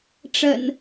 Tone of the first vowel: low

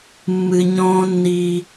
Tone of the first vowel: low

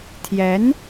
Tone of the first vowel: rising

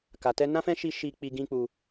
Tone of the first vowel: low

